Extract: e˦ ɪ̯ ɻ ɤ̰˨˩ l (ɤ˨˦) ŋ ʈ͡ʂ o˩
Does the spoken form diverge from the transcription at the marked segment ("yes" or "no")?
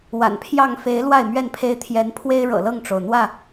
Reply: yes